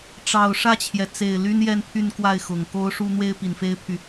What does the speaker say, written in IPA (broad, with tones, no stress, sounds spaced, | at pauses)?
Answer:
ʈ͡ʂ ɑ˨˩ ʊ̯ ʂ ä˥˩ t͡ɕʰ j ɛ˩ t͡s e˨˩ ɪ̯ l y˥ n j ɛ˥˧ n pʰ y˥˧ n k w a˥˩ ɪ̯ x ʊ˨˩ ŋ k o˥ ʊ̯ ʂ u˥ n̪ w e˥ ɪ̯ p i˨˩ n f e˥ ɪ̯ pʰ y˨